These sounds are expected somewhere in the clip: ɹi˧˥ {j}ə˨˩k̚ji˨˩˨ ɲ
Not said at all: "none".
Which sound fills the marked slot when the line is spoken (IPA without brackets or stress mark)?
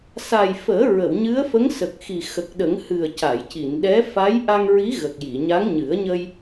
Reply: ɣ